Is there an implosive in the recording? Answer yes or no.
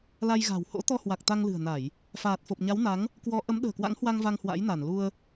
yes